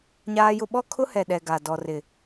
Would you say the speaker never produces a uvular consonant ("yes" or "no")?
yes